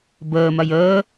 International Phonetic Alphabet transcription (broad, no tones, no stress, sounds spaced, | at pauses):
b əː m ɐ j əː